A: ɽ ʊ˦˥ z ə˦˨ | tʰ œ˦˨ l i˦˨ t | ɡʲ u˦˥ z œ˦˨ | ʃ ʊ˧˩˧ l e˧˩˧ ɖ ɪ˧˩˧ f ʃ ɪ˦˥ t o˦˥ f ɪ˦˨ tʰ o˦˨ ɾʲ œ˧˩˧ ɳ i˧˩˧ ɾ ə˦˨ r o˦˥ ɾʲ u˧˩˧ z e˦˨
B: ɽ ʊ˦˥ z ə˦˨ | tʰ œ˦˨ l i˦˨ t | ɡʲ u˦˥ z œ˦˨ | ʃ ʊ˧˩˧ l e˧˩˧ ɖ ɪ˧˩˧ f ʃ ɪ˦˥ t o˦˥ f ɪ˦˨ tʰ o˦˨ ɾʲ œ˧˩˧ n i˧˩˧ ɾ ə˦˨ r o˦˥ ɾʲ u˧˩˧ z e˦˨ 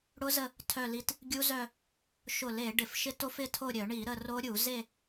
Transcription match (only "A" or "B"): A